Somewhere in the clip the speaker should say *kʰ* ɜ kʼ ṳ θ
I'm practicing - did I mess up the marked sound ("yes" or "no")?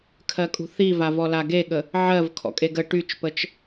no